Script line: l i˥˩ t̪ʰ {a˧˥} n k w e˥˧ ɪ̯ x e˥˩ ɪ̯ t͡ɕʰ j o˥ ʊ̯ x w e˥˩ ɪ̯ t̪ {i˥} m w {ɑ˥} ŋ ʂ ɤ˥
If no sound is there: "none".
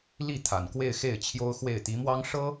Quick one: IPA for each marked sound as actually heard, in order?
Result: a˨˩, i˧˥, ɑ˥

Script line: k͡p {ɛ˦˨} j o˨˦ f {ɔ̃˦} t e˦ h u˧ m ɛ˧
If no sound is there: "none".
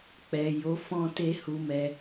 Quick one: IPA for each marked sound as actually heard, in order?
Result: ɛ˨, ɔ̃˦

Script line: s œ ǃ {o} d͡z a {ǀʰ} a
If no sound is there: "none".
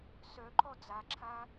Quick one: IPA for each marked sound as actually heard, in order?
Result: ɔ, ǁʰ

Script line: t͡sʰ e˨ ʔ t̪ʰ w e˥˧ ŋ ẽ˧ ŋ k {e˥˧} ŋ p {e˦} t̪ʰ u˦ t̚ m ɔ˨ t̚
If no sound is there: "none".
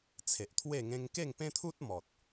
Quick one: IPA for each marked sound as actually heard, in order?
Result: e˥˧, ẽ˦

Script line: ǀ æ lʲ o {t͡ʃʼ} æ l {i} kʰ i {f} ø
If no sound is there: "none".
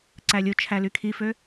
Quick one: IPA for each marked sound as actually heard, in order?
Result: t͡ʃʰ, y, f

